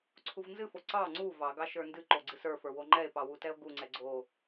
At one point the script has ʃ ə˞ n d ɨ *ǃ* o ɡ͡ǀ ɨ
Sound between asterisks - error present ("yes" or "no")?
no